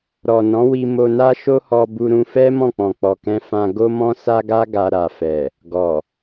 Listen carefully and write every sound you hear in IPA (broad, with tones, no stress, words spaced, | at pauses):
ɾɔ˨ nɔ̃˨˦wi˧ mo˧na˦ ʃo˦hɔ˧bu˧ ɾũ˧fɛ˦ mɔ̃˦˨k͡pɔ̃˨k͡pɔ˨kɛ̃˧ fã˧ ɡo˦mɔ̃˦sa˦ɡa˦ ɡa˧ ɾa˨fɛ˨ | ɡɔ˨